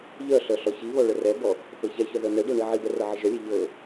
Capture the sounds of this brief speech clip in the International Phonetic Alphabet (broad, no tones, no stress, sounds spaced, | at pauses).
ʎ œ ɬ œ ɬ ɔ ç i β ɔ ɭ ə r ɛ b ɔ | x ɤ ç ɛ ç œ ð œ n ɛ ɖ ɔ ɳ i ʕ i b ɛ r ɤ ʕ ə ʒ œ lʲ ɛ ʎ ɤ